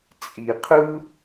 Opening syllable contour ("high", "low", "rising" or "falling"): low